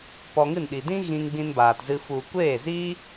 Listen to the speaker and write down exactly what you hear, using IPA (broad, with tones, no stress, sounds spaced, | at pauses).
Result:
p ɔ˧ ŋ ɨ˦˨ n ɗ i˨ d ĩ˦ ɣ ĩ˧ ŋ ɡ͡b ĩ˧ n b aː˨ t z ɨ˧ f u˨ kʷ eː˦˨ z iː˦